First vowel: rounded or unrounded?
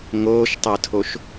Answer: rounded